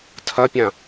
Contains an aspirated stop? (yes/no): yes